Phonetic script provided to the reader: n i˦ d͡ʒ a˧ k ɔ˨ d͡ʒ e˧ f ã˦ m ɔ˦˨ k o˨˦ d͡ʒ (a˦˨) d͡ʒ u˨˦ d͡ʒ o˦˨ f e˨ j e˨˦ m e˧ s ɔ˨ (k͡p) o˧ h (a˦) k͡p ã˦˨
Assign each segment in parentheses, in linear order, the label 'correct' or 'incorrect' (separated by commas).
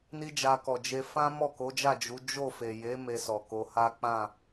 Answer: correct, incorrect, correct